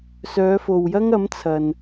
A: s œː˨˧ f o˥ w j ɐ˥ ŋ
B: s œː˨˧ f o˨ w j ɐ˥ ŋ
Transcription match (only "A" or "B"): B